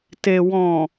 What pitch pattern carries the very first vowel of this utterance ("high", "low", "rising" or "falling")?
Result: low